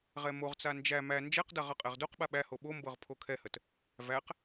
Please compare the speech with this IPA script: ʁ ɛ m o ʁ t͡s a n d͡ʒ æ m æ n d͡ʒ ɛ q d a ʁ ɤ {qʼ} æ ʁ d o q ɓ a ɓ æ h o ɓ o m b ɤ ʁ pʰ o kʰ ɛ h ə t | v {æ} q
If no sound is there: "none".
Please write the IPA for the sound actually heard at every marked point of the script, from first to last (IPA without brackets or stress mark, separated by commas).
qʼ, æ